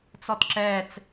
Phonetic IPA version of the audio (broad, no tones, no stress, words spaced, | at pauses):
t͡sɔtǁɛːt͡s